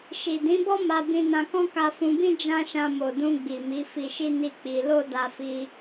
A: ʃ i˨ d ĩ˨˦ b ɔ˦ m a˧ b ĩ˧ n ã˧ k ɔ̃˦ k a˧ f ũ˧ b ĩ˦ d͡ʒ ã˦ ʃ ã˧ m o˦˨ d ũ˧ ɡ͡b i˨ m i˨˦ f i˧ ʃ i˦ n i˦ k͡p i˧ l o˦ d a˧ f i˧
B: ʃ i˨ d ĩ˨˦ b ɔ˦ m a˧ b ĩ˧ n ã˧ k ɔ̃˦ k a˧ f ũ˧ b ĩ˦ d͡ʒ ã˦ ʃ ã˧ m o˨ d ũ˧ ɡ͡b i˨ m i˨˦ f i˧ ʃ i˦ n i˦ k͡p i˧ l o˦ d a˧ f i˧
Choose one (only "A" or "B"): B